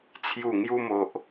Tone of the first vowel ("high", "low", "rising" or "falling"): falling